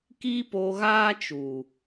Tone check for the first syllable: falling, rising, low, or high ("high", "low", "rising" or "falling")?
high